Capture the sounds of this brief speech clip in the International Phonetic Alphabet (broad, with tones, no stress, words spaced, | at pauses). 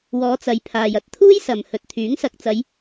wɔː˨˧t͡sɐ˨˧jpʰaː˨j ɐ˨˥t̚t̪ʰuː˥jsɐ˨m hɵ˨t̚t̪ʰyː˨˥ŋ sɐ˨k̚t͡sɐ˨˧j